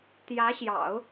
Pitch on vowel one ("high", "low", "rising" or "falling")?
rising